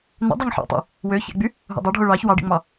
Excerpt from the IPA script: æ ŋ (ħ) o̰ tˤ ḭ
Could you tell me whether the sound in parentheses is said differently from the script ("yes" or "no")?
no